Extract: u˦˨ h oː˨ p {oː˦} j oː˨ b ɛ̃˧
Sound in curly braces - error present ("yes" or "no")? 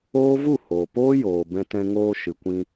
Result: no